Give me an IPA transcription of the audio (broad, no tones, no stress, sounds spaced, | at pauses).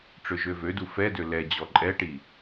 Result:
ʈ͡ʂ ø ʒ ø v ø d u f ɛ d ø l ɛ d͡ʑ ɔ ǃʼ ɛ ʈ i